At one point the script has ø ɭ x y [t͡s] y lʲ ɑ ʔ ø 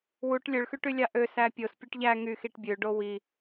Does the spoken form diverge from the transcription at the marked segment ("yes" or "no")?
yes